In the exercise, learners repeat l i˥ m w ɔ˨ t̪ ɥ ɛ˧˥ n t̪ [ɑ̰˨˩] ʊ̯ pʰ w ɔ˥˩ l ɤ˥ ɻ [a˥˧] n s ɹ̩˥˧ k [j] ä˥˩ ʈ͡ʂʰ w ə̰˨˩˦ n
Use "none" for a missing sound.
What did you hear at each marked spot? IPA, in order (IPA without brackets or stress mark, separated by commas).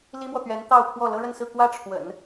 ɑ˥˧, ə˥˧, w